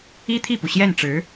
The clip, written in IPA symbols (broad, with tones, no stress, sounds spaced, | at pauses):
i˥ t̪ʰ i˥˩ p u˩ ɕ j ɛ˥˩ n ʈ͡ʂ ɻ̩˧˥